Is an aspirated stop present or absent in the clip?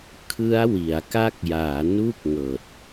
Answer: present